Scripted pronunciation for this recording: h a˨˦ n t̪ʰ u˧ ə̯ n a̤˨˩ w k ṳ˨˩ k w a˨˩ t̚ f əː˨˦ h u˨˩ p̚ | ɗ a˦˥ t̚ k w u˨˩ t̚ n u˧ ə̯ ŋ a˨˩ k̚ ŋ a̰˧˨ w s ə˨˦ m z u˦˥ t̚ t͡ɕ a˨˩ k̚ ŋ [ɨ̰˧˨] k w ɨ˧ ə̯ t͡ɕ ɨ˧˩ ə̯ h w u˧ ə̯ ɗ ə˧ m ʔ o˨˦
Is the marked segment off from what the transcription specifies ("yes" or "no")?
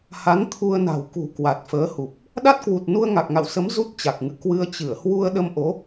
no